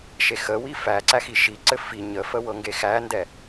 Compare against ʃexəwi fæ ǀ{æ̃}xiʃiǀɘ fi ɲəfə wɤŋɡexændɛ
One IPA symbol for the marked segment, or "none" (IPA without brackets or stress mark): æ